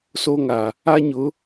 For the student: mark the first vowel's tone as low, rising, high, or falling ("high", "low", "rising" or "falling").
high